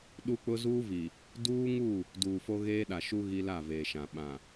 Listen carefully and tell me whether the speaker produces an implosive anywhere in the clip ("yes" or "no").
yes